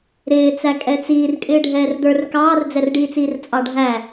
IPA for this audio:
ɾ ɪː t͡s æ kʼ ɛ t͡s iː r kʼ ɪː ɖʱ ɛː r d̪ ə˞ r k ɑː r d͡z ɛ r ɖ iː t͡s iː r t͡sʼ ɑ ɖʱ æ

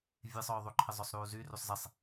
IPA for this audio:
vʲ e sˤ œː ðˤ u ǃʰ ə zˤ œ sˤ ɾ uː z y r y sˤ z e sˤ

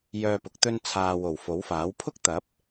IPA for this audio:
j œː˧ p ʊ˨˥ k̚ t̪ ɵ˧ n t͡sʰ aː˨ w o˨˩ w f o˨˥ w f aː˨˥ w pʰ ʊ˥ k̚ t̪ ɐ˨˥ p̚

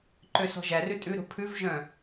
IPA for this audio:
ǃ ø s ɔ̤ ʒ æ r ʉ tʼ ʉ ɾ o̤ pʰ ʉ v ʒ œ̃

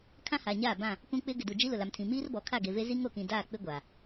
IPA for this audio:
kʰ ã˦ h aː˨ ɲ aː˦˨ b ã˦˨ | k ũ˦ k͡p ɪ˦ ɡ ɪ˨ d u˨ d͡ʒ i˦ l ʊ˨ l a˨ m tʰ ĩ˨ m iː˦ r b ɔ˨ kʰ a˦˨ ɡ e˨ v e˦ z i˦ ŋ o˨ k ĩ˨ d aː˦˨ k͡p ɪ˦ ɡʷ aː˨

